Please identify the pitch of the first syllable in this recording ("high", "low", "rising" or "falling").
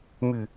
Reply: falling